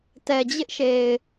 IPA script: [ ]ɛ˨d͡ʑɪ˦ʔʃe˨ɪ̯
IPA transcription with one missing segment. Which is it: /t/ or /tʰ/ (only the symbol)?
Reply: t